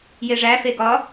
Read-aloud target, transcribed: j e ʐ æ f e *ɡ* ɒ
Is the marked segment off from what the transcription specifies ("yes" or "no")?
no